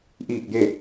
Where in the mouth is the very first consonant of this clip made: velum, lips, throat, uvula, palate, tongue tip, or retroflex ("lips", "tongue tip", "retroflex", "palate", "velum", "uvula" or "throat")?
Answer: throat